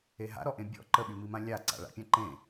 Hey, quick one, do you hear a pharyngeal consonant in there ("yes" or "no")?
no